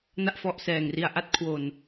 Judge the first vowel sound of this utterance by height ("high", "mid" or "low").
low